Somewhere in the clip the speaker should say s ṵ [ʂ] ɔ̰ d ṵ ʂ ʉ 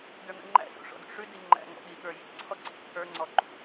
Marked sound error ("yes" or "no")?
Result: no